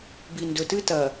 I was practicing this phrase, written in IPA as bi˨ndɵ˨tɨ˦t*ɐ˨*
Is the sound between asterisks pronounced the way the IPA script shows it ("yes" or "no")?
yes